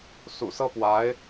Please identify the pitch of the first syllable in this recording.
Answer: low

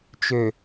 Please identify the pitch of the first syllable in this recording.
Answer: low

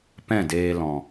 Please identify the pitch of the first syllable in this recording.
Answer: falling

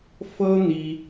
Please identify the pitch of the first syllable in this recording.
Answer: high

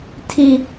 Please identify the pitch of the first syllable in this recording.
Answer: high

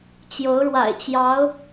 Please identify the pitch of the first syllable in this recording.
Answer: rising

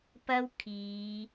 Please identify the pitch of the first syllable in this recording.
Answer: high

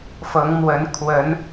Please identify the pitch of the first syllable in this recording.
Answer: rising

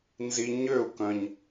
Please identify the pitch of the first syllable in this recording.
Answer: low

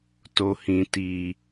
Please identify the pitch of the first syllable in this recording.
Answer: low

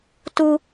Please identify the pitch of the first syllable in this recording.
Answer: high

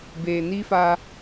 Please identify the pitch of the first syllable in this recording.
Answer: low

